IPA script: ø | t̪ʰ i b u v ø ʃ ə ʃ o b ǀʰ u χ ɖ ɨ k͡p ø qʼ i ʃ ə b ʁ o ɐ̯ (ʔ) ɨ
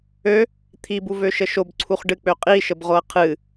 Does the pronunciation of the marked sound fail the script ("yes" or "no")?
yes